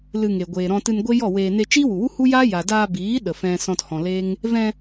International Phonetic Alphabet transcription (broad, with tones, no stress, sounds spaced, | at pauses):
l ɨ˧ ŋ e˨ ɡʷ eː˨ ɾ ɔ̃˧ t ɨ˧ n ɡʷ e˦ j ɔ˦˨ w eː˧ n e˧ t͡ʃ iː˦ w u˨ w u˦ h u˦ j aː˦ j a˨ d aː˧ b iː˨˦ ɗ ə˨ f ɛ̃˧ s ɔ̃˧ t h ɔ̃˨ l eː˦ ŋ | v ɛ̃˧